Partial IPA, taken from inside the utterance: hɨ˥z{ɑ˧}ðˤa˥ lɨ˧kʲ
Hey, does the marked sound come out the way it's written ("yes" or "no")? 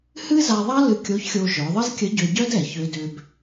no